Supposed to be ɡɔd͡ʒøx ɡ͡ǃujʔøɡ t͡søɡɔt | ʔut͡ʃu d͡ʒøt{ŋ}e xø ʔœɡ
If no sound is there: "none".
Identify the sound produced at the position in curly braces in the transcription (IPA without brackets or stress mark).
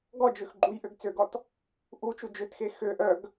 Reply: x